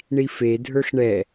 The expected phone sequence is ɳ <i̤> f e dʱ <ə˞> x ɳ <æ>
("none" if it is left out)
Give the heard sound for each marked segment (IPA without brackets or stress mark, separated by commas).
i, ə˞, ɛ